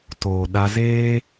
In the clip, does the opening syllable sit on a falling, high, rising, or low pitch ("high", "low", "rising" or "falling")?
low